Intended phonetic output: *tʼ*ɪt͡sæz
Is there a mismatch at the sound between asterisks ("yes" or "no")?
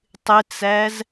yes